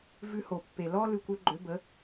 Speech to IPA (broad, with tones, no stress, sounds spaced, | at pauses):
v ʉ˧ h o˩ pː e˩ l ɔ˥ l ʉ˧ kʷ ø˥ ɡ͡ǃ ø˩˥ b ə˩˥